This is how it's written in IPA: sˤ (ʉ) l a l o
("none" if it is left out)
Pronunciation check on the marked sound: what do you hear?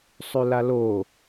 ʉ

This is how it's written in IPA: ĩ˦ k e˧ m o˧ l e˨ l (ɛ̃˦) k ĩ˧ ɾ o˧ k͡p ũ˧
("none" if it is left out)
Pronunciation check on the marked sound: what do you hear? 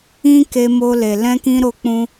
ɛ̃˧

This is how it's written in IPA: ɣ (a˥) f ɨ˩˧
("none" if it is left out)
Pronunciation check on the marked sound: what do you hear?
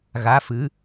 a˩˧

